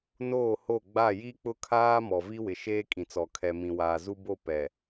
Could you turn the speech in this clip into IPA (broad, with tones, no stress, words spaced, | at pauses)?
noː˦˨ho˦˨ ɡ͡ba˦˨ ji˦k͡pʊ˦kʰaː˦ mɔ˨vi˦wɪ˨ ʃeː˦kʼĩ˨t͡sɔ˨ kʰɛ˨mĩ˨waː˨ zu˦bo˦˨ pɛ˨